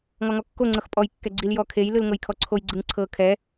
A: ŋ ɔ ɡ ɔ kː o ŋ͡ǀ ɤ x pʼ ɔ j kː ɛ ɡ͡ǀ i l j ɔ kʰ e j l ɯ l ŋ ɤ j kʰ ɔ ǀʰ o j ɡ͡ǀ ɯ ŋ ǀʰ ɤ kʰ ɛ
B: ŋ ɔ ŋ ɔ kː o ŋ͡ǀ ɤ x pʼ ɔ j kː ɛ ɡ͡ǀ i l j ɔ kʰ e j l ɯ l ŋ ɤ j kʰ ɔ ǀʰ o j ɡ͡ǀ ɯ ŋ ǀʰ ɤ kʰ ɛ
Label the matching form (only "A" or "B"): B